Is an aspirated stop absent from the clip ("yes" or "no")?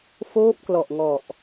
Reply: yes